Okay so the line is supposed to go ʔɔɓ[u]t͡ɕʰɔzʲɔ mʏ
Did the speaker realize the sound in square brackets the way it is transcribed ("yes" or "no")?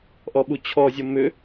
yes